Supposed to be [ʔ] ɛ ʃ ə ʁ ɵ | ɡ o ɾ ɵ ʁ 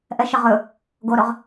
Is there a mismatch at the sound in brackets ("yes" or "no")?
no